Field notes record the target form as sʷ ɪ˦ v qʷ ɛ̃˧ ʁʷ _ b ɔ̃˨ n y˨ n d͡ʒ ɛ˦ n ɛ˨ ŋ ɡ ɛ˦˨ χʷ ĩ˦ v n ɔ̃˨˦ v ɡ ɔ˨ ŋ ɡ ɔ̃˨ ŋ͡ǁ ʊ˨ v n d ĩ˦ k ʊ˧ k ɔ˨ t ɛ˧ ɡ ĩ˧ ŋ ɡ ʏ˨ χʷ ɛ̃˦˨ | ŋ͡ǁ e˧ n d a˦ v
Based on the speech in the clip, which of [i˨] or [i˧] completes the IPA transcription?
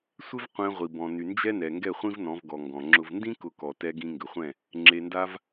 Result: i˨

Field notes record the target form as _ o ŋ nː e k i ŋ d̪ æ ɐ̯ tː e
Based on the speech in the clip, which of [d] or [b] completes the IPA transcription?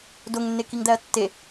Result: d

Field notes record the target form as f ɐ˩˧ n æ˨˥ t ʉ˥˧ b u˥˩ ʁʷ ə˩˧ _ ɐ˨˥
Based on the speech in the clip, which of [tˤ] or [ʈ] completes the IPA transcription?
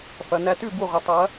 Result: tˤ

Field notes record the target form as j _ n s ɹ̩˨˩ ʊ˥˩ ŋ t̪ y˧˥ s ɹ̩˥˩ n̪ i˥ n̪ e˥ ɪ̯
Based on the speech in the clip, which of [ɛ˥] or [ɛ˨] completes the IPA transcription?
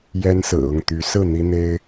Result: ɛ˥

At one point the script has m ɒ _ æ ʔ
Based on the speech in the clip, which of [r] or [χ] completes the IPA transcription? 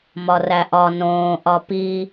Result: r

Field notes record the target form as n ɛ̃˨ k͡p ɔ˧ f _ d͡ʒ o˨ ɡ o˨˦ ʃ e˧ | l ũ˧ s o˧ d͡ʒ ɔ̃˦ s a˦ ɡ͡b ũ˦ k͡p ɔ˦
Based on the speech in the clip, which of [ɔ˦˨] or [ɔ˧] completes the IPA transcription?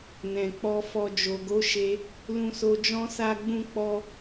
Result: ɔ˧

